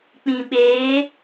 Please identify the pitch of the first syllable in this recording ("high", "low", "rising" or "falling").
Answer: low